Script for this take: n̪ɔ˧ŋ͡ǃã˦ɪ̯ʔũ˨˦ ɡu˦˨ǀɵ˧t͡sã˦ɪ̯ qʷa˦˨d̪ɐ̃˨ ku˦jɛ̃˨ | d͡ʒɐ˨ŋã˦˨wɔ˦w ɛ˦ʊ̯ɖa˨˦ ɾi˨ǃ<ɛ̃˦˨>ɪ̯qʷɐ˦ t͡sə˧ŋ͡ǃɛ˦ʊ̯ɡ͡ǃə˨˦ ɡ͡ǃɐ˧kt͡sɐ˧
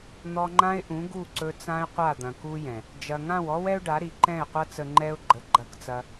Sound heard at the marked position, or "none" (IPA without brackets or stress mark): ɛ̃˦˨